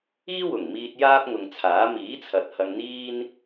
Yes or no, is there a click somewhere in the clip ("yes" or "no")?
no